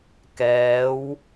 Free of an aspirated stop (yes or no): yes